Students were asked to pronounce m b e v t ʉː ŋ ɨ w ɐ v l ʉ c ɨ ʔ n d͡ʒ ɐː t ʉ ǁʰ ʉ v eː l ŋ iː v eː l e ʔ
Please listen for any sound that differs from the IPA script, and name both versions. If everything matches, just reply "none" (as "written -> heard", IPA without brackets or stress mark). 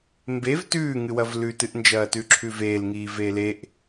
c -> t